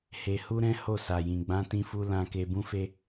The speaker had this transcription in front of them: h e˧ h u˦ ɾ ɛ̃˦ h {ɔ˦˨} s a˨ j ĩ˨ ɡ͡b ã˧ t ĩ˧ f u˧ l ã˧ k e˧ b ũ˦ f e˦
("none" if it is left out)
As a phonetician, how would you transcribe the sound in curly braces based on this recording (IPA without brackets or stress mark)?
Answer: o˦˨